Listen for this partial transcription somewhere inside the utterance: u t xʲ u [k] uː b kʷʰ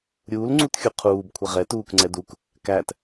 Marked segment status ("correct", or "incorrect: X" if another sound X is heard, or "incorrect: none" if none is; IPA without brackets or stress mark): incorrect: qʰ